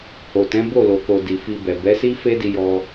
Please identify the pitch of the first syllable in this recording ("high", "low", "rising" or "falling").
low